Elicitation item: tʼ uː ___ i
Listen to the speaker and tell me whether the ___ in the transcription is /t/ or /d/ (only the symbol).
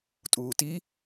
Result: t